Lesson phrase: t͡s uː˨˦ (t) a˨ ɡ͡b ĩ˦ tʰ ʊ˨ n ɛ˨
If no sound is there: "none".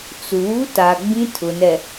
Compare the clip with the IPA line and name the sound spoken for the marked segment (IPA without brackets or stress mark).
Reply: t